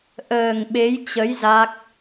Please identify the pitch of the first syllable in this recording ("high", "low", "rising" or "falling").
low